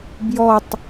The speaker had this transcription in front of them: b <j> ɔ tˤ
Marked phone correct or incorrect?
correct